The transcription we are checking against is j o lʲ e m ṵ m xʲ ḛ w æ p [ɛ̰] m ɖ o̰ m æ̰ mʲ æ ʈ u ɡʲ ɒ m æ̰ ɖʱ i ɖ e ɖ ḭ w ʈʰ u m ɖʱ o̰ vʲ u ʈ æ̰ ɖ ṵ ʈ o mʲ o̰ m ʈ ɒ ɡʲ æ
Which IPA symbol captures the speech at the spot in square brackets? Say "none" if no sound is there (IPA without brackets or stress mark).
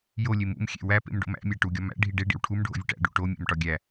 ḛ